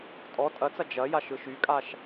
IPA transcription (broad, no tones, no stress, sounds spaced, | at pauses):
tʼ ɔ tʼ ɐ t͡s ɐ d͡ʒ ɐ j a ʃ ɯ ʃ y kʼ a ʃ